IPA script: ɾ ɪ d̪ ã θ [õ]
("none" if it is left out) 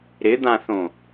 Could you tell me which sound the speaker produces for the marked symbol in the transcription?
õ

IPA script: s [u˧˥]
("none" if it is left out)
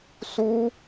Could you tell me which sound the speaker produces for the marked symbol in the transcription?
u˥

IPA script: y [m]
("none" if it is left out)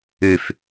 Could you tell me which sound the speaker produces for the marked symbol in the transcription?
f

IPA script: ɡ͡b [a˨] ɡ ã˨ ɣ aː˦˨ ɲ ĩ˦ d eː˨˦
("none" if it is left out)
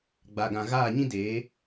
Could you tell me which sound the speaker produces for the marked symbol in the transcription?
a˨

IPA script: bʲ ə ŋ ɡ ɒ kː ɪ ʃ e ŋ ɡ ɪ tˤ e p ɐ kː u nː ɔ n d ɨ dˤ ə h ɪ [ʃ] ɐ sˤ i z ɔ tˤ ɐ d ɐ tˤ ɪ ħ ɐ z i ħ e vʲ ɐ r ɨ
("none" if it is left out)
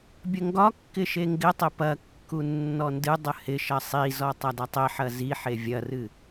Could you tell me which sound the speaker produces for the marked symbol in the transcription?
ʃ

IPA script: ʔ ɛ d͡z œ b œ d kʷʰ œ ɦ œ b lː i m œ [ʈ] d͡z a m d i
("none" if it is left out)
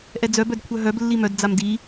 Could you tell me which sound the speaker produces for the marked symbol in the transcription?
d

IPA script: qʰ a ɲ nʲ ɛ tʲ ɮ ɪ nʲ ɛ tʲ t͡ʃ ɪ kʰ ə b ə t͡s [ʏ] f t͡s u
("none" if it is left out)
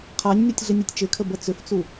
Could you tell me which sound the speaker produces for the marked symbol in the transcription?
ʏ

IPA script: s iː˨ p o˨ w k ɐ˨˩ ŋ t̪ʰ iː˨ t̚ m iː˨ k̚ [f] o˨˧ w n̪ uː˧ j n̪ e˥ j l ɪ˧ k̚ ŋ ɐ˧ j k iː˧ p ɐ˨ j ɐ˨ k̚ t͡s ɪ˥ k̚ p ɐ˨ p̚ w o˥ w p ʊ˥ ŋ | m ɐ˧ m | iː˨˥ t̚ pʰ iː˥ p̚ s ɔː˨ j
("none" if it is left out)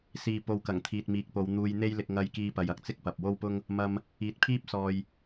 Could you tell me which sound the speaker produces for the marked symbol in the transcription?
p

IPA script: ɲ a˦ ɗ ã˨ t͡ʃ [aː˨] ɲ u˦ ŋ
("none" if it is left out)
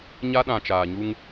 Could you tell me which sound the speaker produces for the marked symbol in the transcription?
aː˨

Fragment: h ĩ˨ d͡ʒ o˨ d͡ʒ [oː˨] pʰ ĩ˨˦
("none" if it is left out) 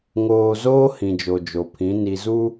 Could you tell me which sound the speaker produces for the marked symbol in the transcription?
o˨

